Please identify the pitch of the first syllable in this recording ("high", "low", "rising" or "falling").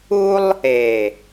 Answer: high